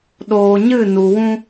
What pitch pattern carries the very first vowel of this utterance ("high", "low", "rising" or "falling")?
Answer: low